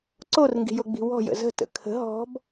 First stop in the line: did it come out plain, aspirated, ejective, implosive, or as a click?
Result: click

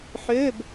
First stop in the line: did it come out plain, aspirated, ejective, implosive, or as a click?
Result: plain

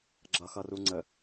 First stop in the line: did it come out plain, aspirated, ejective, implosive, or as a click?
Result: click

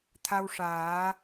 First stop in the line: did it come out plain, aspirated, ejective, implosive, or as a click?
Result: aspirated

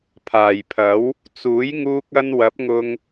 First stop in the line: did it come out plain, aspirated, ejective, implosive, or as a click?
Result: aspirated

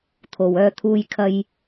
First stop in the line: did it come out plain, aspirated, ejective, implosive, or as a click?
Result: aspirated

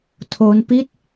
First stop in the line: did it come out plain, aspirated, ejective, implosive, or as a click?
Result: aspirated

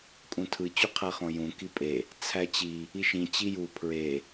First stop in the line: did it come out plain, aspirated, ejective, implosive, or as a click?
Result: ejective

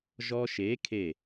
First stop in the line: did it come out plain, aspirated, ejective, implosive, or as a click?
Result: aspirated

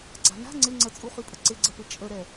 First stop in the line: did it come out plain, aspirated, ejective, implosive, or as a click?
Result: click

